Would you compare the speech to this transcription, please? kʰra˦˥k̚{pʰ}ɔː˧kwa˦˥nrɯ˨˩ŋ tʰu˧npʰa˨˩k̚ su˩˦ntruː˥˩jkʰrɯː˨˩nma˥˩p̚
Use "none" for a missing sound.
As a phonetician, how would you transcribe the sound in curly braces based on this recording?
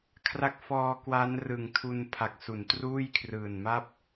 f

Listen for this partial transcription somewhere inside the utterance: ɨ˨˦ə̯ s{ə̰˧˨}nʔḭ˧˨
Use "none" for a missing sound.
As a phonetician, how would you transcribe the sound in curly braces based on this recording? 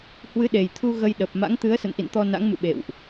ə̰˧˨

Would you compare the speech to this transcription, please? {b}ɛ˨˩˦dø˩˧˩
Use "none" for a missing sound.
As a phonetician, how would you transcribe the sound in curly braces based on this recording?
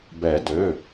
b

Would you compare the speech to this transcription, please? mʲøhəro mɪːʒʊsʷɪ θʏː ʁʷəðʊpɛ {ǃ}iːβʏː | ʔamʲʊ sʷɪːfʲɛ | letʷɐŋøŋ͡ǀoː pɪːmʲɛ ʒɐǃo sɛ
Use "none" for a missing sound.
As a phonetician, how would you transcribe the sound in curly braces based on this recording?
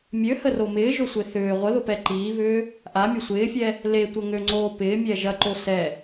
ǃ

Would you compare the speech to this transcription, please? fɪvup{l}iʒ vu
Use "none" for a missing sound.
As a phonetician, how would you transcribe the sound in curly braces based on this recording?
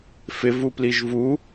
l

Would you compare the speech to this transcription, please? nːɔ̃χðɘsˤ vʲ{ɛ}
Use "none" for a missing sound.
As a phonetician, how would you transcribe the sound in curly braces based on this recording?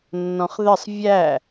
æ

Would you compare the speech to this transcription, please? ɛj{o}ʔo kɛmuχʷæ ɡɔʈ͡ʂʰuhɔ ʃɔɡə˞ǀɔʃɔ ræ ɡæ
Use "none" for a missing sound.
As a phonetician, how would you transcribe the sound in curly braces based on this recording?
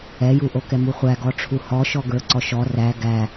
u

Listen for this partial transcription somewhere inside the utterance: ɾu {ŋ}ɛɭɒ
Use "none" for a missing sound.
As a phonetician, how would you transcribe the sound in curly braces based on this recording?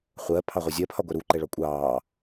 ǃ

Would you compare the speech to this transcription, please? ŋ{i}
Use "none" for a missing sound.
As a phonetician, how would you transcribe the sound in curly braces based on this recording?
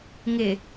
ɪ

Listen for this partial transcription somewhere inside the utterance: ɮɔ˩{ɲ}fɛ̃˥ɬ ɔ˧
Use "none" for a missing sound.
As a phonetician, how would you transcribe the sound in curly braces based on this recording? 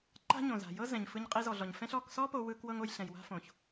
ɲ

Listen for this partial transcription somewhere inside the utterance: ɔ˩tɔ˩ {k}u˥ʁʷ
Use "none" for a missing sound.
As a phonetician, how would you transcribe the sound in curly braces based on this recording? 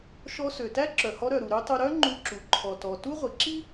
t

